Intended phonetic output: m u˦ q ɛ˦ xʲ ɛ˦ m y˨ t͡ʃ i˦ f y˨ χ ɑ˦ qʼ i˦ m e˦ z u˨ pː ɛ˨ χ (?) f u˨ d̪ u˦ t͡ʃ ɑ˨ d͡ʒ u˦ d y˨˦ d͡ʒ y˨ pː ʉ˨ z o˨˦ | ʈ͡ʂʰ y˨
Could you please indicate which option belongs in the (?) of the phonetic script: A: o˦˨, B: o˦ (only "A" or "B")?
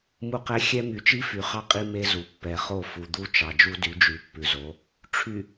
A